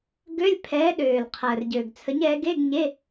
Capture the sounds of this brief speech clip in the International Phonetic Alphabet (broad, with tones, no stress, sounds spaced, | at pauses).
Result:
ɡ ø˧˥˧ lʲ pʰ ɛː˨˥ ɗ øː˨˩ l qʰ əː˨˩ r ɟ ø˨˩ ɡ t͡sʰ ə˨˥ ɲ ɛ˨˥ ɡ e˧˥˧ ɡ ɲ e˧˥˧